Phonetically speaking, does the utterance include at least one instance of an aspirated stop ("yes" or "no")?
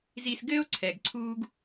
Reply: yes